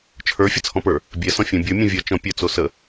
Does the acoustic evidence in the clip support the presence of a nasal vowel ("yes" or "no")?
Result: yes